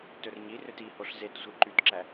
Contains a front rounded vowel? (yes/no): yes